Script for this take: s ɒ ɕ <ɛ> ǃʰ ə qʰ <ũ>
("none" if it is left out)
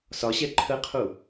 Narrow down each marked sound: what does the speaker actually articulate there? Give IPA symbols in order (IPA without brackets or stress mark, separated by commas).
ɛ, u